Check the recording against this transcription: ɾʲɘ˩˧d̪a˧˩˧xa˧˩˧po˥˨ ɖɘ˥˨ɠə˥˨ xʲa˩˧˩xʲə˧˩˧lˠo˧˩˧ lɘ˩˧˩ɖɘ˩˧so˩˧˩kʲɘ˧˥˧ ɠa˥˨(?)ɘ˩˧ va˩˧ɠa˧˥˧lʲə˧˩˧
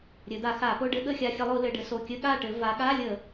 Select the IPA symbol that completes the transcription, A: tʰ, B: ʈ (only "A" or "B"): B